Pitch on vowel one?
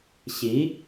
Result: rising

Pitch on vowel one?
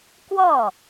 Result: falling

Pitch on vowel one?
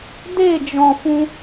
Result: falling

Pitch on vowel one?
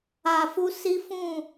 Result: low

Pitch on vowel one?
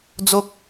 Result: low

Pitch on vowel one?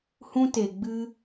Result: high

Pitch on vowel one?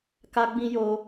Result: high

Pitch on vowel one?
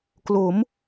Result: rising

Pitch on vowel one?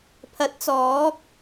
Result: rising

